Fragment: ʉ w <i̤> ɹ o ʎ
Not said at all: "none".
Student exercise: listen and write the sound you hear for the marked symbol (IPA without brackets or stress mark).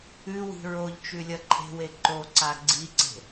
i̤